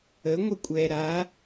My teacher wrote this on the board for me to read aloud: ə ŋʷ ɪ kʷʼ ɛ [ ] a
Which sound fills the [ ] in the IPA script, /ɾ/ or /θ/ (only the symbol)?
ɾ